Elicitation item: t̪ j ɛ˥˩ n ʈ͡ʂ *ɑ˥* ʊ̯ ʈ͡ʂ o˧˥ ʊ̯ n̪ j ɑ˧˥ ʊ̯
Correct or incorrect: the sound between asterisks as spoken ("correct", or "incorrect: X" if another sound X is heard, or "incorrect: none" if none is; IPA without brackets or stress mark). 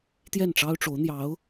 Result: correct